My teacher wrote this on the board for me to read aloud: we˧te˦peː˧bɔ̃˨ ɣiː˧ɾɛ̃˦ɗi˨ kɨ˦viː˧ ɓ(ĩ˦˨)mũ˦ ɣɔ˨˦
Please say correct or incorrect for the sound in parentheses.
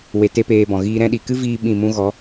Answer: correct